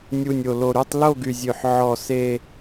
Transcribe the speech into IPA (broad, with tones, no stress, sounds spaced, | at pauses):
nʲ u˨˩ nʲ o˨˩ l o˨˩ ɾ y˥˧ tˤ l o˥˧ ɡ y˨˩ zʲ ø˨˩ ħ ʕ ɔ˨˩ s e˥˧